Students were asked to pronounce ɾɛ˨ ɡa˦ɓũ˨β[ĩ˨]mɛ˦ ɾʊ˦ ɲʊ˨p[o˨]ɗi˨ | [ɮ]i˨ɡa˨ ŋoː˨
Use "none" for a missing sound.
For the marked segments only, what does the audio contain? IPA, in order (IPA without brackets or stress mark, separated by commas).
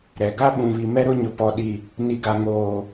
i˨, ɔ˨, n